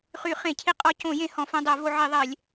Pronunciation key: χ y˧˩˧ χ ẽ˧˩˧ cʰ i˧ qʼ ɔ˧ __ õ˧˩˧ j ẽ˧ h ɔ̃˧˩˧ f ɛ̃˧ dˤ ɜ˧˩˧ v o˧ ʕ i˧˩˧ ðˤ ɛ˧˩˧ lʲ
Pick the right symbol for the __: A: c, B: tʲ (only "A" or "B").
A